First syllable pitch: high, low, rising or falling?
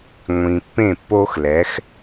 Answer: low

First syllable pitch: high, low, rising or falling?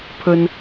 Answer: high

